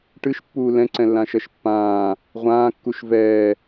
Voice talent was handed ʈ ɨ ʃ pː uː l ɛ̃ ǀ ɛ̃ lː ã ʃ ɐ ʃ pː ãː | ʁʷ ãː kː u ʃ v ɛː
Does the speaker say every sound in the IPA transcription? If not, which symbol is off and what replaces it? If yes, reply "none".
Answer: none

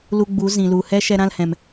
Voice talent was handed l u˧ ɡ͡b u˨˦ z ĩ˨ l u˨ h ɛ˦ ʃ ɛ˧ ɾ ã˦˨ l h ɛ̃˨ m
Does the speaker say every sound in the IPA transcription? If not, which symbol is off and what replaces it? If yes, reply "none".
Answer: none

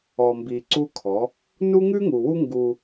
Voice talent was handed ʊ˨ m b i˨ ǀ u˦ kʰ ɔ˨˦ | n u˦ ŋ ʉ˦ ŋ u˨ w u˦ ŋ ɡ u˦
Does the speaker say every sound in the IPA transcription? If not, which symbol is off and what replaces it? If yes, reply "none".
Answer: ʊ˨ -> ɔ˨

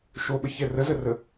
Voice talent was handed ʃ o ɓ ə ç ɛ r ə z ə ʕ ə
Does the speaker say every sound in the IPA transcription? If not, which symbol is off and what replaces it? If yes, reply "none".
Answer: ʕ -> r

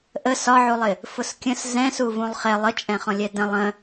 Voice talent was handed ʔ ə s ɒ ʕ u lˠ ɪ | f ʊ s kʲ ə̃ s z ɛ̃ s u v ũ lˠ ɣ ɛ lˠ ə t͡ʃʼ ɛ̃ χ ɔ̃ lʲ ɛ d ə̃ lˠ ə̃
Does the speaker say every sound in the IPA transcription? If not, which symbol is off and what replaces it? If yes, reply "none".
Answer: ɣ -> χ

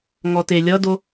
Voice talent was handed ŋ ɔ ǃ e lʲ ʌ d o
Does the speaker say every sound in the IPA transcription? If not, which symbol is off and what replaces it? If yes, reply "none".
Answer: ǃ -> t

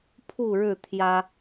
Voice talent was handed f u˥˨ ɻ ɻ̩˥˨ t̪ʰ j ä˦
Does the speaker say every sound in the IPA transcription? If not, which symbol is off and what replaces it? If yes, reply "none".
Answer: f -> pʰ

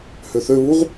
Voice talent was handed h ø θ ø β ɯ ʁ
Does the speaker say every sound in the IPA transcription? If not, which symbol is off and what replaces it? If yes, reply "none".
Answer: ɯ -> u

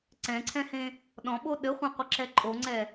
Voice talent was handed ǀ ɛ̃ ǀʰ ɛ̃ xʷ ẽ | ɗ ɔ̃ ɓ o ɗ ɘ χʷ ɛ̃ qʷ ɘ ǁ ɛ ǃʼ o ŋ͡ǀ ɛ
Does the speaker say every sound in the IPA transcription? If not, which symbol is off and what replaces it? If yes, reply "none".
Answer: xʷ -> h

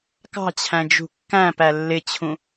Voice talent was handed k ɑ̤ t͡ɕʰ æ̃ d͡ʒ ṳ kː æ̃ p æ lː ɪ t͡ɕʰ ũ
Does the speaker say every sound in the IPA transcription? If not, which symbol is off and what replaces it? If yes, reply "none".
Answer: none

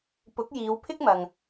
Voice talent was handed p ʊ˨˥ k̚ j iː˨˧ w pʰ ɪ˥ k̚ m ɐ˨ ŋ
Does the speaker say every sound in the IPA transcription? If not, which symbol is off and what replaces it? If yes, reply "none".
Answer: none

